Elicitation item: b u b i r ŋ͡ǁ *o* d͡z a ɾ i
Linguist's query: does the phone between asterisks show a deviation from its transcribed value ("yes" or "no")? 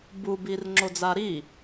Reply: no